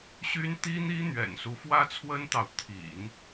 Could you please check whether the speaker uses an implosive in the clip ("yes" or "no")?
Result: no